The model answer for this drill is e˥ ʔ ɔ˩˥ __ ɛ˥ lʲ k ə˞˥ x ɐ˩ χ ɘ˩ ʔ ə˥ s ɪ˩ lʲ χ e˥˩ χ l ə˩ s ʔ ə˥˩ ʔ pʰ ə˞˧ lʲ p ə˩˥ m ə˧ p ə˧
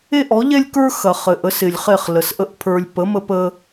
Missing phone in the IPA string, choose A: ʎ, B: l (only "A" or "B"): A